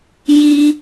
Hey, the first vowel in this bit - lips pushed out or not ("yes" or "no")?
no